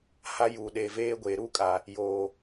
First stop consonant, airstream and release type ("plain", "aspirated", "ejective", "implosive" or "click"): implosive